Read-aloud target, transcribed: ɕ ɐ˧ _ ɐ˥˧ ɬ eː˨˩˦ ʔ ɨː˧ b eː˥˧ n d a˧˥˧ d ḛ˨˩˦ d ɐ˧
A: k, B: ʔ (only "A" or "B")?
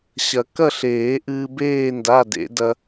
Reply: A